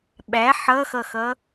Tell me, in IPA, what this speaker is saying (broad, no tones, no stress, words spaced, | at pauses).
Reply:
ɓæ ħʌxʌxʌ